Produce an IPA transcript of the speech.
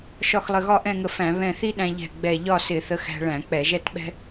ʃ ɒ˧˩ x lˠ ə˧˩ ɣ ɒ˥˧ ʔ ɛ̃˥˧ ŋ ə˧ f æ̃˧˩˧ β ɛ̃˧˩ θ i˥ ɗ æ̃˧ ʎ ɛ̤˧˩ ɡ͡b ɛ˧˩ ʎ ɒ˥˧ s ɪ˧˩˧ θ ə˧ x æ̤˧ ɭ æ̃˧˩˧ k͡p ɛ˧˩˧ ʒ ɛ˥˧ t ɓ ɛ̤˥

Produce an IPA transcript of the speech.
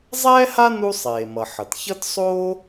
zˤ ɛː˥ h a˥ n u˥ sˤ eː˩ m ʌ˩ ħ ʌ˩ t ç ʌ˥ t sˤ oː˥

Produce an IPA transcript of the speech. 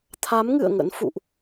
t̪ʰ a˨˦ m ŋ ɨ̰˧˨ ə̯ ŋ ə̰˧˥ n f ṵ˧˨ ʔ

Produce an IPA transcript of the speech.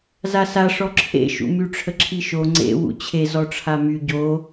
z a s a ʂ ɔ ǁʰ ḛ ʃ ṵ m y ʈ͡ʂʰ ə ǁʰ i ʃ o ŋ͡ǀ ḛ w ṵ t͡ɕʰ e z ɔ ʈ͡ʂʰ a m y ɟ o

